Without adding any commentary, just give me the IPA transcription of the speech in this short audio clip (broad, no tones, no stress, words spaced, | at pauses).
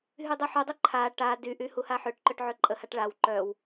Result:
ɦydˤœħudˤø ǃʰa ʈa dyʔy huhaħøʈǃœʈ ʕøǃʼəhaʈ ɭaw ǃœw